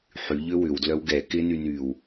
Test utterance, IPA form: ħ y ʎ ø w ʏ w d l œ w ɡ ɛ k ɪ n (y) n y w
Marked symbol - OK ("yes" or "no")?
yes